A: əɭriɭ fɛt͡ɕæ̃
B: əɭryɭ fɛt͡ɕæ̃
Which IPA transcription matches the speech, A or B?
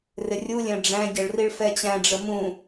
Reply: A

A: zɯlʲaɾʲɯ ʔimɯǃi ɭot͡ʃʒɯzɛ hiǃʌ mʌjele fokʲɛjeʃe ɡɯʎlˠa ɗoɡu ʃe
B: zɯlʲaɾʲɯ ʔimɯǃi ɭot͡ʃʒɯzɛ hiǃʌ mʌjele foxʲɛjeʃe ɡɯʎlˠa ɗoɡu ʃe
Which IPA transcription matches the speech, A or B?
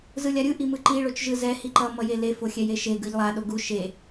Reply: B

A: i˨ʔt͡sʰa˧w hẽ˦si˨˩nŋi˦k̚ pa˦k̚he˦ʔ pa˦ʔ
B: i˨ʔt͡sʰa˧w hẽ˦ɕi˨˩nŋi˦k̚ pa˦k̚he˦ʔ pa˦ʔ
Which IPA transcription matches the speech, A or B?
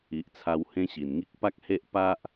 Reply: B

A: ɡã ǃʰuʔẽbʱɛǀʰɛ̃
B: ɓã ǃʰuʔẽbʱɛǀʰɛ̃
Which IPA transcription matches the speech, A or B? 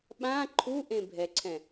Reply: B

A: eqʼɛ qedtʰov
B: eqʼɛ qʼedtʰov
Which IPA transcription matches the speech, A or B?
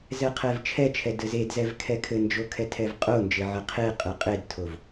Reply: B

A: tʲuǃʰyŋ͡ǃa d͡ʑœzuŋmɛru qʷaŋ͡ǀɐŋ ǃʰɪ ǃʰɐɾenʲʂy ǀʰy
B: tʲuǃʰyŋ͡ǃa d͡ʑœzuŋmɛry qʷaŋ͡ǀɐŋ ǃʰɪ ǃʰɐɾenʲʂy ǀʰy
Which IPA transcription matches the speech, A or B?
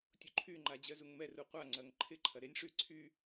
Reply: A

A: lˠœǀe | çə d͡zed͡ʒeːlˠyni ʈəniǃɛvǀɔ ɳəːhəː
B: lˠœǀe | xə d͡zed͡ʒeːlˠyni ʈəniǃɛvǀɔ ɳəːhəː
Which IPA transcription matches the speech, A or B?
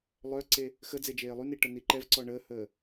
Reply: B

